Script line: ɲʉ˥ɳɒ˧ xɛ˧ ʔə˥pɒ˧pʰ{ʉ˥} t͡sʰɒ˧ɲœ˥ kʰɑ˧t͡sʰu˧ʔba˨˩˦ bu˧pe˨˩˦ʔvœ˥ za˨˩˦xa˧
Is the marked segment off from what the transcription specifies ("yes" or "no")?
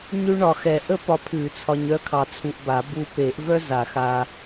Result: yes